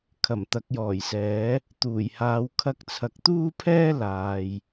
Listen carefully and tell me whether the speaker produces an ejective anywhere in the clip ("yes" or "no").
no